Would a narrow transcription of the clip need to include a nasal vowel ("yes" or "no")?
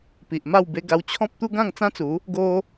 yes